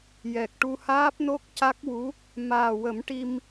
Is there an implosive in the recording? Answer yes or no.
no